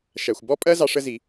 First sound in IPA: ʃ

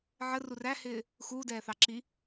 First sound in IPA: ʕ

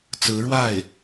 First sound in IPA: t͡s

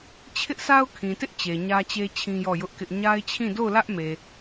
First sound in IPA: t͡ɕʰ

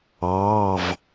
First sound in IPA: ɑː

